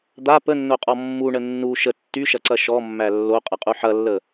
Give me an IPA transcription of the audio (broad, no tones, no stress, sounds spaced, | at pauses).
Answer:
d̪ a p ə nː o qʼ ɔ mː u ɳ ə nː u ʃ ə tː y ʃ ɐ ǀ ɐ ʃ ɔ mː æ lː o qʼ ɐ qʼ u ħ ɐ lː ə